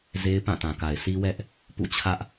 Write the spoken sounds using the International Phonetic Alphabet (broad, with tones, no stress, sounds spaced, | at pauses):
z e˦ ɪ̯ p ã˦˨ t ã˨ k a˨ ɪ̯ s i˦ w ɛ˦ ʔ | p ṵ˦˨ t͡ɕʰ ä˦ ʔ